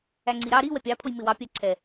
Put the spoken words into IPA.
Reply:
æŋ͡ǀiɾɑ ɾi wɛpʲɑpʰʊj mɪwɑpʲæ ǀʰɛ

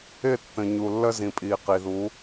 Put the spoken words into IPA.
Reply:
ɪ˦˨ tːə̃˨ɲu˨lːə˦ zĩ˨pʼiː˨qi˨ðu˨˦

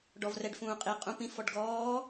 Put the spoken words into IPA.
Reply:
ɖɔvrɛɖfũːqʼi qʼũpĩf ɔɖɡɔː

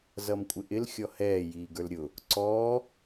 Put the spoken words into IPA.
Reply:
zʌmkʷʼɪʔɪl xʲɔhɛː jiːɡə˞lɾʲʊ | ǀɔː

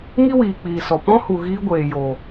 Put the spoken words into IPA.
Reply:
ŋi˦wiː˨k͡piː˨sɔ˨ pɔ̃˦hu˨ ɣiː˦ɡʷeː˨jo˨

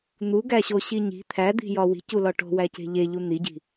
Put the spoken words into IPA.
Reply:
n̪uɡæɕoɕi ɲi̤ t̪ʰæd̪i̤jɒ wi̤culɒ ʈo̤wæce̤ ʎeʎu n̪iɟi̤

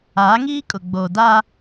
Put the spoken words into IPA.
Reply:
aː˨˦ŋiː˦kʼʊ˨ ɡ͡boː˨ da˦

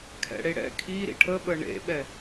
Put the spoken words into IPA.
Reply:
kʰɛ̰ɽeɽɛ̰ kʰi ɾḭʈʰəɓə ɳḛɓɛ

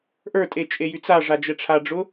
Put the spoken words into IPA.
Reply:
ʔə˞tʼe t͡ʃʼejyt͡saʐa d͡ʒɛʈ͡ʂʰaɖ͡ʐʊ

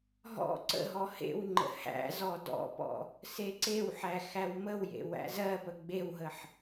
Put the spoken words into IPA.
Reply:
ɦɔ̰ ǀə̰ɦɔ hḛwŋ͡ǃə̰ hæ̰zɔ dɔ̰pɔ̰ | seǀewħæ xæwməwjḛ wæ̰zɜpə ɡ͡bewɦəħ

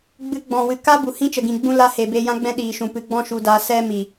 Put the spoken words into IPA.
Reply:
ɡ͡bɨ˧ɡ͡bɔ̃˨wɨ˨ ka˦bu˨ hĩ˦t͡ʃə˨ɡĩ˨ ɡ͡bũ˦ la˧ he˨beː˧jã˦ɡ͡bɛ̃˦ ɗiː˨ʃũ˨pɨ˨˦ ɡ͡bɔ̃˦ʃu˧daː˧ sɛ˦mi˨

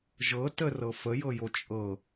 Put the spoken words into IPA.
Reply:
ʒɤ tərɤ fəjɤjo t͡ʃʼɤ

